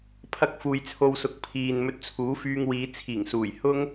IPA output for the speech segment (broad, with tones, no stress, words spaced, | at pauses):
pʰɐ˥k̚fuː˧j t͡sʰo˧wsʊ˨k̚ pʰiː˨n mɵ˧t̚t͡sʰuː˨˥fyː˧ŋwiː˨˧ t͡sʰiː˨˩ŋsuː˨˩j hʊ˥ŋ